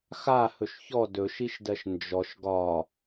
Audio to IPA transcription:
x a h ɵ ʃ ç ɔ d ɵ ʃ i ʃ d ɜ ʃ n d͡ʒ ɔ ʃ ɡ ɒ

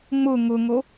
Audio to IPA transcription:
ŋ͡m ʊ ŋ ʊ ŋ o

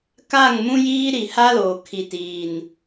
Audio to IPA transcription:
k a˦˨ ŋ m ũ˦ j iː˦ ɾ i˨ h a˦ l oː˨ kʰ i˨ t iː˨ n

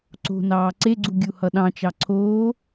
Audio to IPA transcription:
ǀ o̤ n ɑː ǀ e ɡ͡ǀ u ɡʲ u h ʌ ɗ ɑ̃ t͡ʃ ɑ ǀʰ oː

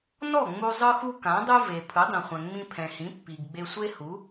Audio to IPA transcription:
n ɔ˥˩ ŋ͡m u˧ zˤ ɯ˧ x u˧ k ã˩˥ dˤ ɯ˥ v e˩ pʰ ɯ˩˥ dˤ ĩ˩ χʷ ɛ̃˩ ŋ͡m ĩ˧ pʰ ɛ̃˩ h ĩ˩˥ pː i˩ ɡ ɡ͡b e˧ sʷ e˥ h u˩˥

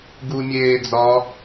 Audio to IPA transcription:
ɡ u mʲ eː d͡z ɒ

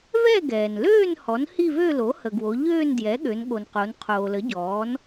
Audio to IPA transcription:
v ɛ˥˧ ɡ ɛː˩ n l øː˥˧ n h ɔ˩˥ n h i˥˧ v ø˥˧ l o˩˥ h ə˩ ɡ w o˩˧ ʎ øː˥˧ n d j ɛ˩˥ ɠ ø˩˧ n ɠ o˩ n q o˩˧ n qʰ oː˩ l ə˩˥ ɟ ɔː˩˥ n

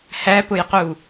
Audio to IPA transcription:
h æ p ʊ j q u

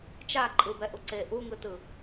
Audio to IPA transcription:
t͡ʃ a ǃʼ ɯ b ɛ ʔ u ǀ e ʔ u ŋ ɯ t ɯ

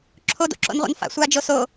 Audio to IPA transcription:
ǁʰ o d o̰ ǁ o̰ n ʁʷ a̰ n f a̰ sʷ aː d͡ʒ o s o

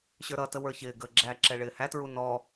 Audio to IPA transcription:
ɕ ə˞ ɾ ʌ t ə w ə˞ ç ɪː ɡ əː ɡ͡ǁ æ ǁ ɛ ɭ ɪː h æ t ɹ u n ɔ

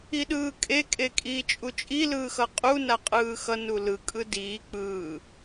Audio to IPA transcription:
i ɗ ɯː kʼ e kʼ e kʼ iː t͡ʃʼ u t͡ʃʼ i l ɯː x ʌ qʼ u n a qʼ ɯː x ʌ n u l ɯ kʼ ɯ d iː k͡p ɯː

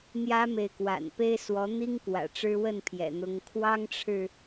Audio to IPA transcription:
n̪ j ä˦ m e˨ ɪ̯ k w a̰˨˩ n p e˦ ɪ̯ s w ɔ˨˦ n̪ i˦ ŋ k w ä̰˨˩ ʈ͡ʂ ɻ̩˦ w ə˥˨ n pʰ j ɛ̰˨˩ n̪ ʊ˨˦ ŋ kʰ w ɑ˦ ŋ ʈ͡ʂʰ ɻ̩˨

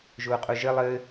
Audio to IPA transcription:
ʒ ʊː qʼ ʊ ʒ ɘ lˠ ɘ

